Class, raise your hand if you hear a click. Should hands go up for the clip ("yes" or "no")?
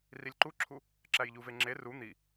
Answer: yes